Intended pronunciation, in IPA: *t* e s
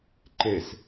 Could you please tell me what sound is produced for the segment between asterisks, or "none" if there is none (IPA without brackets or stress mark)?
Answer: ǃ